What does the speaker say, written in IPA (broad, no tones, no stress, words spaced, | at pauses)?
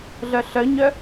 ɮœɬœɲœ